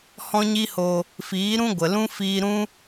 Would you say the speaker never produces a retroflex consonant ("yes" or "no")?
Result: yes